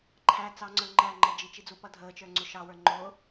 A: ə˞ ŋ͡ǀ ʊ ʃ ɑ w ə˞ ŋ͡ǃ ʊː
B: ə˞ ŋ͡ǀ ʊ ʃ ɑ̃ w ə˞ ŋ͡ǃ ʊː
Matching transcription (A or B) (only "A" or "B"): A